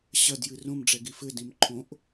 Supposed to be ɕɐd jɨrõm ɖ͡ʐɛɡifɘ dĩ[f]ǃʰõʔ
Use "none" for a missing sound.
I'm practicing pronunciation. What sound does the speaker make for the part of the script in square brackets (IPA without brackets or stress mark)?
m